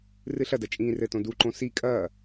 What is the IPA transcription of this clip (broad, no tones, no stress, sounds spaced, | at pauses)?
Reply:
r ɨ ɬ ɐ d ɐ t͡ʃʼ ĩː r ɘ t õ d u ǃ õ s i kʼ ɐː